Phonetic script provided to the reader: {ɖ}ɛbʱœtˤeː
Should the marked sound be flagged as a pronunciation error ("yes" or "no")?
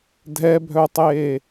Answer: yes